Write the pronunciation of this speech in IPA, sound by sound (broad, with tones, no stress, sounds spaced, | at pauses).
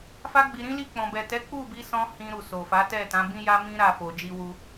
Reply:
f a˦ ɡ͡b i˧ ɾ ĩ˦ l i˦˨ k͡p ɔ̃˨ b ɛ˨ t ɛ˨˦ k͡p u˦˨ b i˧ s ɔ̃˧ h ĩ˧ ɾ u˨ s o˨ f a˨˦ t ɛ˦˨ t ã˨˦ b ĩ˦ j a˦ m ĩ˦ ɾ a˦˨ f o˨ d͡ʒ i˧ w u˧